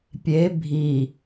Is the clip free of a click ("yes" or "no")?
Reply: yes